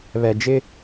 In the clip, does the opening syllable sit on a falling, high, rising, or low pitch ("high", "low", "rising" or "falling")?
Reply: low